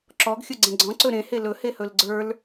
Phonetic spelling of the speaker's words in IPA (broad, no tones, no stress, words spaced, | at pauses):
ǁɔɡxʲɵɡ͡ǀɛ̃ ɡ͡ǀɔ̃ǀɵ ɾẽhe lɵhehɵl ɡ͡ǀə˞l